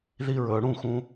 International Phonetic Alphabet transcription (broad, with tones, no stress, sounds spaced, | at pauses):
ð i˧ ɹ ɵː˨ ɽ ũ˦˨ x ũ˧